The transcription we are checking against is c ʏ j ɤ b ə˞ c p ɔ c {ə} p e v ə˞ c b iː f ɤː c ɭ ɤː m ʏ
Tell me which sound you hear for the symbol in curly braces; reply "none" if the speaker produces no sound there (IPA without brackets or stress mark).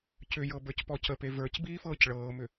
ə